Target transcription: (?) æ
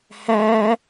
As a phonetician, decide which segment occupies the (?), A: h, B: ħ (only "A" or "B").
A